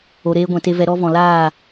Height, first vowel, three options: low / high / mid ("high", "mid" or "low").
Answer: mid